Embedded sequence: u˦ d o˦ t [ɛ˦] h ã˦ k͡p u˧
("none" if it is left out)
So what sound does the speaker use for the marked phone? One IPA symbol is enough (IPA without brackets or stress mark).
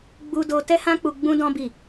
ɛ˦